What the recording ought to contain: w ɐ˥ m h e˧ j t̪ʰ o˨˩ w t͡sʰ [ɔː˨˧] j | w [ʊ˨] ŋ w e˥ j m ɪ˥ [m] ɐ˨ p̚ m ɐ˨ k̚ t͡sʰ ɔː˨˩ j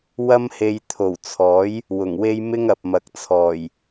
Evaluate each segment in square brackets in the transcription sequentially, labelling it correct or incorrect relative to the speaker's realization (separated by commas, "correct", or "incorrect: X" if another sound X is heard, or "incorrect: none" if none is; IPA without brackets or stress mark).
incorrect: ɔː˨˥, incorrect: ʊ˨˩, incorrect: ŋ